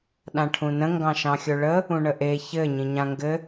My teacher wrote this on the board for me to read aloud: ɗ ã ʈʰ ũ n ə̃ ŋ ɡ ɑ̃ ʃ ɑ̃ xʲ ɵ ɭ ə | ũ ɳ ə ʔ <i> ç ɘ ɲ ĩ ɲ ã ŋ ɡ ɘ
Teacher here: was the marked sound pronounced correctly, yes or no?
no